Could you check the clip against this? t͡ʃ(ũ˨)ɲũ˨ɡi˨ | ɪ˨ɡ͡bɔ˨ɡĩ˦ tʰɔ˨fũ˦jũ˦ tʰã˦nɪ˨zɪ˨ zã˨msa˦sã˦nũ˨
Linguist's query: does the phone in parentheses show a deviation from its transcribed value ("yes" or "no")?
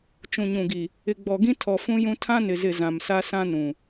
no